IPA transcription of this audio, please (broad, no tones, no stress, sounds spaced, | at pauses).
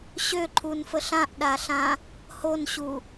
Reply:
ɕ ø ǃʰ u n f ə ɬ ã ʔ ɗ a ɬ ã | h o n ɕ u